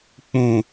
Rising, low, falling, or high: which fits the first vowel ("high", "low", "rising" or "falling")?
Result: low